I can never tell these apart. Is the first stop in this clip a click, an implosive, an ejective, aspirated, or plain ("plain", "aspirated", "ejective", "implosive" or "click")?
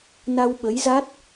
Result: implosive